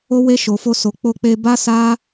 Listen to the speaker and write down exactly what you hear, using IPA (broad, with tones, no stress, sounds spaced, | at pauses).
o˦ w e˦ ʃ o˧ f o˦ s o˧ k͡p o˧ k͡p e˧ b a˦ s a˦